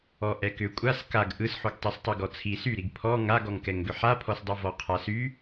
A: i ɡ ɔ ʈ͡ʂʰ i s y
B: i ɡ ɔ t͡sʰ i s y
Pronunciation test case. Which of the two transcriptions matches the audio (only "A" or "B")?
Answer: B